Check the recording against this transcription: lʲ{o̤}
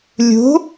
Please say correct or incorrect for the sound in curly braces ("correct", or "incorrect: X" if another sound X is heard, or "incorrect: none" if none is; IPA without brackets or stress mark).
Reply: correct